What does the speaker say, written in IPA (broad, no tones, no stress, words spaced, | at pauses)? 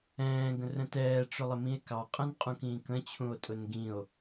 ɛ̃ːɡə̃rə̃ tɛːʈ͡ʂʊlˠɪmĩe̯ kɑqʼɛ̃nqʼũ kĩːkə̃t͡ɕʰũo̯tʼʊn ɡĩo̯